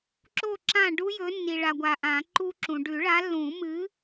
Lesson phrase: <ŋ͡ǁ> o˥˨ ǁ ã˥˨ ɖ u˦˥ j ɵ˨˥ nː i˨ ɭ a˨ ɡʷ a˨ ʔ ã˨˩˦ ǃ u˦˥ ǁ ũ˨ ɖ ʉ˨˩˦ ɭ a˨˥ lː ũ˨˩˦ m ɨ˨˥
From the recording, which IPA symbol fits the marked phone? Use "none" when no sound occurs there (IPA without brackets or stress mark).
ǁ